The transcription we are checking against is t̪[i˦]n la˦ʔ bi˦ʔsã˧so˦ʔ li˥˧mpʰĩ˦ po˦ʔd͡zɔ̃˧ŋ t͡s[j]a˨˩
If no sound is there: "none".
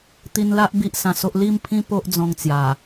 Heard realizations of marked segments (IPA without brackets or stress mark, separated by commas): i˧, j